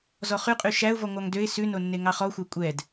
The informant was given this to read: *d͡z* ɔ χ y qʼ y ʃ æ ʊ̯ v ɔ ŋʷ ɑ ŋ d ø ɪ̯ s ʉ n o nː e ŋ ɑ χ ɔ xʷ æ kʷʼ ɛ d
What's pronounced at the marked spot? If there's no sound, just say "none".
z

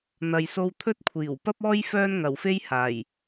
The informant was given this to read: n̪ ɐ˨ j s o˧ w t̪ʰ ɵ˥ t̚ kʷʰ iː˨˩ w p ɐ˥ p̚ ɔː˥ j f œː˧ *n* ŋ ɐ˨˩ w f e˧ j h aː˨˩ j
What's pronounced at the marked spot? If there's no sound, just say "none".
n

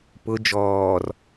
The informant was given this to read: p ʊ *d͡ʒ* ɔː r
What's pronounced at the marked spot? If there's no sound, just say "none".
d͡ʒ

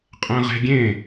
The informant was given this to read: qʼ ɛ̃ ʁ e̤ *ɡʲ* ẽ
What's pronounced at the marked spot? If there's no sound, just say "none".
ɡʲ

